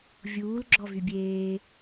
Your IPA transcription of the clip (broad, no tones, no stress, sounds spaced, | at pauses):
vʲ uː l ɡ͡ǁ ɔ v y bʲ eː